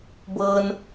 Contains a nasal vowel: no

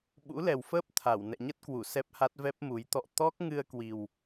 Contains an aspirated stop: yes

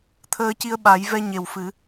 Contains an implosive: yes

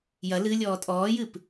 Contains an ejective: yes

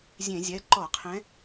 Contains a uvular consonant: yes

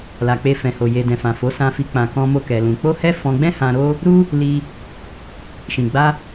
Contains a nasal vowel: yes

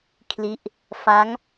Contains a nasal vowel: no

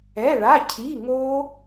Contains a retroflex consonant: yes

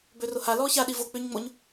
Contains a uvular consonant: no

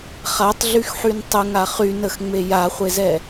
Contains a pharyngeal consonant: yes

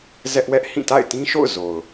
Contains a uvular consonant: no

